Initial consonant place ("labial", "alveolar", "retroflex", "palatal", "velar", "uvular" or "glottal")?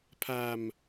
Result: labial